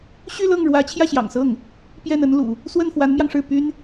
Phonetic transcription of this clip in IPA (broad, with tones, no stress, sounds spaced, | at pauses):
ɕ y˥˧ l ɤ˥˩ ŋ ɻ w ä˧˥ t͡ɕʰ j ä˥˩ ɕ j ɑ̰˨˩ ŋ s ɤ˥˩ ŋ | p j ɛ˥˩ n ə˥ n l ṵ˨˩˦ | s w ə˥˩ n f w a˧˥ n m j ɑ˧ ŋ ʂ ɻ̩˥˩ p y˥ n